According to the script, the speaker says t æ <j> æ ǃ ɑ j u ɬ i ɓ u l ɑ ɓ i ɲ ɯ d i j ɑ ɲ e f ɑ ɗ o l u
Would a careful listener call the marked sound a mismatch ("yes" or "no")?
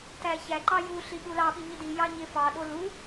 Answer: yes